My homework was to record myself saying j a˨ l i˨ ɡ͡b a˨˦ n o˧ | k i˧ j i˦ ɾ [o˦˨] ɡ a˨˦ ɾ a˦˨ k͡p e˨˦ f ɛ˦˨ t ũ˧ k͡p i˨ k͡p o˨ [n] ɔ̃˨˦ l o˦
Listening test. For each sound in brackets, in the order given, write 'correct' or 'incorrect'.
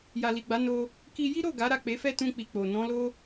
correct, correct

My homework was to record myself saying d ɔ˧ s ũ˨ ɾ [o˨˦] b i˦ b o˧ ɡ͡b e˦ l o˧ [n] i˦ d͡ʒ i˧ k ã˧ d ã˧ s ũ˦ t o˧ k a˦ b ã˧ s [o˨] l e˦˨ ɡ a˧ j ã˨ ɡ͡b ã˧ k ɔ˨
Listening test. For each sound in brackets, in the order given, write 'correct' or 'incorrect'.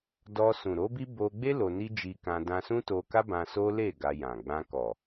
correct, correct, incorrect: o˦

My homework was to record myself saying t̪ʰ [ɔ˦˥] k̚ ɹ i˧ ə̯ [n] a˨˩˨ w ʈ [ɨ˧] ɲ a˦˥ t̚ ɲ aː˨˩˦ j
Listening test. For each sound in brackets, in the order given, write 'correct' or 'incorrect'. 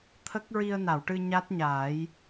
incorrect: ə˦˥, correct, correct

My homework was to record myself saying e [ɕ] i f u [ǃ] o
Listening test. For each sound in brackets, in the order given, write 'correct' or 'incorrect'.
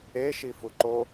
incorrect: ʃ, correct

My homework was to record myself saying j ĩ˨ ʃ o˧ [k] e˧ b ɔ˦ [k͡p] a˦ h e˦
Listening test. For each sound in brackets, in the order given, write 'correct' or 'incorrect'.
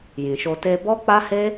incorrect: t, correct

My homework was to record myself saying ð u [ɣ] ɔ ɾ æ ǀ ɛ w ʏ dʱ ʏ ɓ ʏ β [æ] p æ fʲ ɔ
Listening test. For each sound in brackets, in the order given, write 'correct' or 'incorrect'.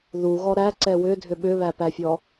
correct, correct

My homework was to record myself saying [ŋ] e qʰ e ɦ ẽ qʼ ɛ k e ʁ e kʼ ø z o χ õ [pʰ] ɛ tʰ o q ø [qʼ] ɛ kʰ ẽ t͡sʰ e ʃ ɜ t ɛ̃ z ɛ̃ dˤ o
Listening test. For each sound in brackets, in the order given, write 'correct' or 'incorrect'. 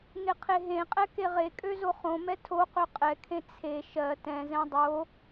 correct, incorrect: m, correct

